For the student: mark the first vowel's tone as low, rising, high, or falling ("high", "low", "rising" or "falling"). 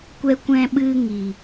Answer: high